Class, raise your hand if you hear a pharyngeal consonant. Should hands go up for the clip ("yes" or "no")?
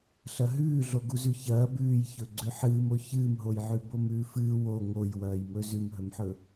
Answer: yes